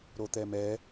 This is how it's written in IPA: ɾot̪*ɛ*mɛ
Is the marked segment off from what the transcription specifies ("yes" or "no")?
no